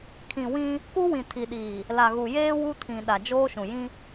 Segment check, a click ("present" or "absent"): absent